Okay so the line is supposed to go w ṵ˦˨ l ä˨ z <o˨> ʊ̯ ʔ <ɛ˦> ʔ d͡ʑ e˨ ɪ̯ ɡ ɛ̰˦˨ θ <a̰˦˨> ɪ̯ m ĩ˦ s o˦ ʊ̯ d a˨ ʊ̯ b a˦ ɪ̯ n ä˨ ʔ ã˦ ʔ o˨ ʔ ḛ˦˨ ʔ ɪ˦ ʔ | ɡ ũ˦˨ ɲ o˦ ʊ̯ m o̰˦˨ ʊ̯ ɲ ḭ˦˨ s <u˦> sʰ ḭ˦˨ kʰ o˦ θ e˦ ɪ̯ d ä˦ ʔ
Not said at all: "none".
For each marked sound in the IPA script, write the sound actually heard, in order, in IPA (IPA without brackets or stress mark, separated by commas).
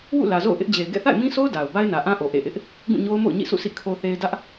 o̰˦˨, ɪ˦, a̰˦˨, ṵ˦˨